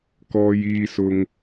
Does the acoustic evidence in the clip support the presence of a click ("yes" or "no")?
no